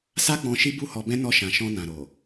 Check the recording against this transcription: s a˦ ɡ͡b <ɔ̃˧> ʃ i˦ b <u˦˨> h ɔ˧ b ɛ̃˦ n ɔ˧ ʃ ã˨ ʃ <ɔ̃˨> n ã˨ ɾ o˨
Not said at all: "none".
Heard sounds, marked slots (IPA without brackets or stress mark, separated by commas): ɔ̃˧, u˦˨, ɔ̃˧